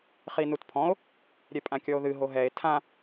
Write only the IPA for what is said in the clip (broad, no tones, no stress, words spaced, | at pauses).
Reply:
χinutpʰɔ̃o̯ | ɾʲɛpʼãkʲɔo̯ðɨ ɦoɦɛe̯ tʰã